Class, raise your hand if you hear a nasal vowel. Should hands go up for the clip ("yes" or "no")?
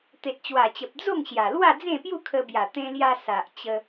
yes